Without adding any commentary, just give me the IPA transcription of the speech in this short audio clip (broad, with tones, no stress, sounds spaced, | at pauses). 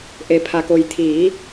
ʔ e˩ pʰ a˩ k o˩ j t̪ʰ iː˩˧